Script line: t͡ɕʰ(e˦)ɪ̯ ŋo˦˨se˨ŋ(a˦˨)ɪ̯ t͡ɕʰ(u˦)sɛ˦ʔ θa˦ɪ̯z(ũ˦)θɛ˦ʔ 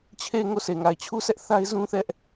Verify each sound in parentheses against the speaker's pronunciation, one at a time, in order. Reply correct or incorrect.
incorrect, incorrect, correct, correct

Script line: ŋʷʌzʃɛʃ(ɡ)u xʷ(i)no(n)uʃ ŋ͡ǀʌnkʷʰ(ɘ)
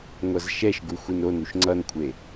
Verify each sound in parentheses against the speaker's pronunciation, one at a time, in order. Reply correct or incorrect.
correct, correct, correct, incorrect

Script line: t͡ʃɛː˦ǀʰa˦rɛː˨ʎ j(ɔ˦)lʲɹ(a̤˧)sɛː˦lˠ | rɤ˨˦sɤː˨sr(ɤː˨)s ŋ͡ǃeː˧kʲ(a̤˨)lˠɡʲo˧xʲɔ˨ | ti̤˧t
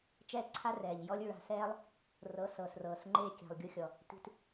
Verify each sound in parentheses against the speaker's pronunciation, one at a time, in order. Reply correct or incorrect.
correct, correct, correct, correct

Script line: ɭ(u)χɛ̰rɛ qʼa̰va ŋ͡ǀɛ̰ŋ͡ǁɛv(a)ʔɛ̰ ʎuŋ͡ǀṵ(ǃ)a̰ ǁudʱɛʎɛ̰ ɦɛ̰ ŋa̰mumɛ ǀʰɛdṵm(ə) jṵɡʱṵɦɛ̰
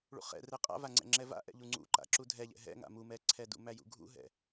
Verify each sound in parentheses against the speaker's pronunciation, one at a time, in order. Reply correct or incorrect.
incorrect, incorrect, correct, incorrect

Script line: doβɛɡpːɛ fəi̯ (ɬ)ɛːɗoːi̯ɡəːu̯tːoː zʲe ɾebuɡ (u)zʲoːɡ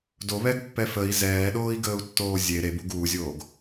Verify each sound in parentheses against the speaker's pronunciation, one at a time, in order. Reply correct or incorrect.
incorrect, incorrect

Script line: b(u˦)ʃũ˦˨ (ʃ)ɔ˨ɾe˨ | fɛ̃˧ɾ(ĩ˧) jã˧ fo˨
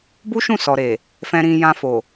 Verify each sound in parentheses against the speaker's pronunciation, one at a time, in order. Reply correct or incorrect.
correct, incorrect, correct

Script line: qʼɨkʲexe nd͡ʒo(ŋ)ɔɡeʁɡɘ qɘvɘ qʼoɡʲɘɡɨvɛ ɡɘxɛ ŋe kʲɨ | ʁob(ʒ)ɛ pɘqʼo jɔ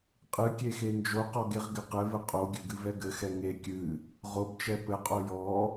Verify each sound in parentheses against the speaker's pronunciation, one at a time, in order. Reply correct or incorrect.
incorrect, incorrect

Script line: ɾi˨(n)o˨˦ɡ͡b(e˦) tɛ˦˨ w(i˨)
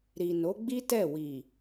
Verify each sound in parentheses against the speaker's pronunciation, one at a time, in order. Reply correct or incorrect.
correct, incorrect, correct

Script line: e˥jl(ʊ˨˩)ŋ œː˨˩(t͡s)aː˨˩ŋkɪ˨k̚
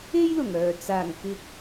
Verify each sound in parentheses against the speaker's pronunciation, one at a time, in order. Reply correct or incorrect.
correct, correct

